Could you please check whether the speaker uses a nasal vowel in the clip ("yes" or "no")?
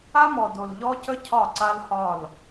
no